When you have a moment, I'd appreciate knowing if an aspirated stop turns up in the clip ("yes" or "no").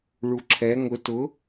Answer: yes